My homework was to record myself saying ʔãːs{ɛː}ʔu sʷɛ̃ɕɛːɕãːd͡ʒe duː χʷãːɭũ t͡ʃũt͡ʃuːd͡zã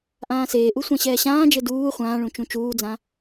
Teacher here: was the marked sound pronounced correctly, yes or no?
no